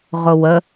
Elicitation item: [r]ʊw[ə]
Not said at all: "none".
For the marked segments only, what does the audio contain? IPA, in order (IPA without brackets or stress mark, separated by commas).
ʁ, ə